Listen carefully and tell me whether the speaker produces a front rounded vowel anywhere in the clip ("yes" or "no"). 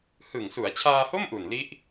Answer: no